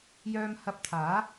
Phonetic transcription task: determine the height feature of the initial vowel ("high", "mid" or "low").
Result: mid